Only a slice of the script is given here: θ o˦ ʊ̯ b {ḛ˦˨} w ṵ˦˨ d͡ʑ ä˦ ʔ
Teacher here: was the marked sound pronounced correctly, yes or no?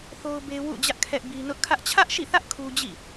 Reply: no